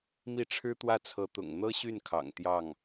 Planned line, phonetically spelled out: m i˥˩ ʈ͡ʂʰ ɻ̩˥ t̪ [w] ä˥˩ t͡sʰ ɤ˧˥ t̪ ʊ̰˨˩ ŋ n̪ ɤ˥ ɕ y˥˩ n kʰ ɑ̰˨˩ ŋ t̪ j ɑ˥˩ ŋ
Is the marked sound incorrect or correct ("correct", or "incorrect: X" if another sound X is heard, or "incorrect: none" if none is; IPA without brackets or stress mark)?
correct